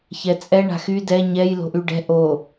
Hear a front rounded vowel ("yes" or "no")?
yes